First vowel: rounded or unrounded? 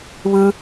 unrounded